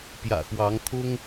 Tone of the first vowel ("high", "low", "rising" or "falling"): low